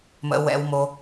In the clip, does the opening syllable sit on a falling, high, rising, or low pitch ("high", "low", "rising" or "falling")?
low